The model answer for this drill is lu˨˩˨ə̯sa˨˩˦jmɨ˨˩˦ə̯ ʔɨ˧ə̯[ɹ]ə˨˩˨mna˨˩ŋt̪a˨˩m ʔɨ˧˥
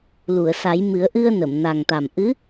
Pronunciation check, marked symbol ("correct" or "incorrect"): incorrect